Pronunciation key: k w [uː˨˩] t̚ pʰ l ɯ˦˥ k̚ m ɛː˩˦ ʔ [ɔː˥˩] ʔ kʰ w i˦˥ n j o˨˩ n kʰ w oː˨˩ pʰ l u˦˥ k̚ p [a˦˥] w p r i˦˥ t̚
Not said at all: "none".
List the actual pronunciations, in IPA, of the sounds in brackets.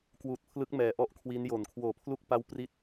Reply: uː˨˩, ɔ˥˩, a˥˩

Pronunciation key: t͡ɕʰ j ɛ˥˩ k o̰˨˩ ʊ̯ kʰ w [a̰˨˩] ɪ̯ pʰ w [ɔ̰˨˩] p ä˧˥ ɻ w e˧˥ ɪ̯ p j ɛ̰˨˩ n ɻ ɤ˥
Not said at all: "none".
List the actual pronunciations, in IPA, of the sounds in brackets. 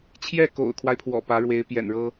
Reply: a˦, ɔ̰˨˩

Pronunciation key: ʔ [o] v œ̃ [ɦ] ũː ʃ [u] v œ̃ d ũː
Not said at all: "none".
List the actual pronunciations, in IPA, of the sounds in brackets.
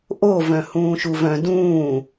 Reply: o, h, u

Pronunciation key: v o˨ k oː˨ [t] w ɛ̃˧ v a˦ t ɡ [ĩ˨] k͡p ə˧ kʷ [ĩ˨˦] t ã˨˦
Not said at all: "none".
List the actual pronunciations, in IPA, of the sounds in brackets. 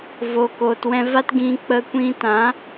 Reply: t, ĩ˧, ĩ˧

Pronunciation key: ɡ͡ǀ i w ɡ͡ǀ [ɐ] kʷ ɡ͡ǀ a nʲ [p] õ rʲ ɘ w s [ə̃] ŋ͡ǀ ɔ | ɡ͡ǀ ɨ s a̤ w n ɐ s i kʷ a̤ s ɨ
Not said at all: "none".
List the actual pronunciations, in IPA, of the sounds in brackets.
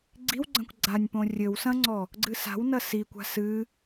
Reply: ɐ̃, p, ɐ̃

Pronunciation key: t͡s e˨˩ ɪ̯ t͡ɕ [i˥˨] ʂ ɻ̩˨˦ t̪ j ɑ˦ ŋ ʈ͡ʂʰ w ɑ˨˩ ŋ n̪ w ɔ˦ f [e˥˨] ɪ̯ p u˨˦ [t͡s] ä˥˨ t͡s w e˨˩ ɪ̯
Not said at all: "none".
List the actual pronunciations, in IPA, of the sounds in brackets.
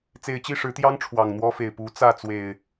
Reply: i˥˨, e˨˩, t͡s

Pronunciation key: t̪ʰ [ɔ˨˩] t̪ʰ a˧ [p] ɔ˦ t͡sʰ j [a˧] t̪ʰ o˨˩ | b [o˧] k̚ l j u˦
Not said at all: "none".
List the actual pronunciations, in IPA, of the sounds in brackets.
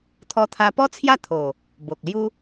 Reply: ɔ˧, p, a˥˧, o˨

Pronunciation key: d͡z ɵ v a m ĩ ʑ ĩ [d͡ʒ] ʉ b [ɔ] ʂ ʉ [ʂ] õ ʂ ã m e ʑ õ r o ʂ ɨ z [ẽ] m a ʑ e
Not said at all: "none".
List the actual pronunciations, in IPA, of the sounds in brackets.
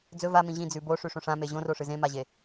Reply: d͡z, o, ʂ, ẽ

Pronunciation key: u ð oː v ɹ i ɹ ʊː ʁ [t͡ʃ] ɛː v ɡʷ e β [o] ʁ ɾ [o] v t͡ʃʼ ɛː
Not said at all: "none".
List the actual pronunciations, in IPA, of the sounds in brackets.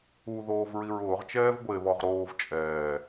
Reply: t͡ʃ, ɔ, oː

